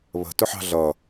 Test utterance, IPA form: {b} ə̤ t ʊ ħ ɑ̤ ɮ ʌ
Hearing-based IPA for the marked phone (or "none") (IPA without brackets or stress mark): β